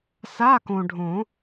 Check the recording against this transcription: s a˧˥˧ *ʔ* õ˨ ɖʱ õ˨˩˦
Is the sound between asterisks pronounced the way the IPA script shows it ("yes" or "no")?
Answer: no